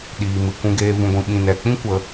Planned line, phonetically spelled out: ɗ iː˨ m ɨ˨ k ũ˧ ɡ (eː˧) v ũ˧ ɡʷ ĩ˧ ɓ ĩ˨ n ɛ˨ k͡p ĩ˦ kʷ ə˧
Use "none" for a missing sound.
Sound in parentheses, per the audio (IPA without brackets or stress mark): eː˧